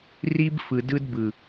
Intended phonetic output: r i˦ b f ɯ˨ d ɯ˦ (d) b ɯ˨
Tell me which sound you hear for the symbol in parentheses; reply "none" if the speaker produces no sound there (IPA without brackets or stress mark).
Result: d